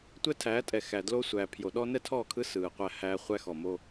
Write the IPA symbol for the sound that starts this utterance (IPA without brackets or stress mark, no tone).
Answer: tʷ